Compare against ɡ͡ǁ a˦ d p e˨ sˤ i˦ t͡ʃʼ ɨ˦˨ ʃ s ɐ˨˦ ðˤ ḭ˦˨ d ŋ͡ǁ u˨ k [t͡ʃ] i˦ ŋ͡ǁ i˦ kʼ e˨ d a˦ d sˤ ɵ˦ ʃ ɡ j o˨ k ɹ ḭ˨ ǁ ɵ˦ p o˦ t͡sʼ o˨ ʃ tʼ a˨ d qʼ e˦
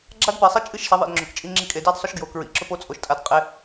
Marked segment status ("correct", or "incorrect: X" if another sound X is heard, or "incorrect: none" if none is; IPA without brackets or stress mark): incorrect: t͡ʃʼ